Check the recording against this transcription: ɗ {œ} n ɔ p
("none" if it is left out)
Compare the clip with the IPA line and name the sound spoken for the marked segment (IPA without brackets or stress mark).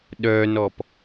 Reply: œ